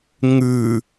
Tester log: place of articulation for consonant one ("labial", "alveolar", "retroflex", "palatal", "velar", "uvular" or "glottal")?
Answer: velar